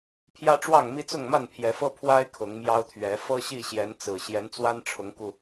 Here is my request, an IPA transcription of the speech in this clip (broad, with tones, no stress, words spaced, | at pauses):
pʰjä˦ʈ͡ʂwɑ˥˨ŋmi˦ t͡sʊ˥˨ŋma˥˨npʰjɛ˨˦fɤ˦ pʰwa˦ɪ̯ kʰʊ˨˦ŋmjɑ˦ʊ̯t̪ʰɥɛ˨˦ fɤ˦ɕi˥˨ɕjɛ˨˦nt͡sɹ̩˨˩ ɕjɛ˨˦nt͡swa˦nʈ͡ʂʰʊ˨˦ŋku˧